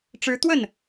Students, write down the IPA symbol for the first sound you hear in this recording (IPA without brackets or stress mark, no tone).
ʈ͡ʂ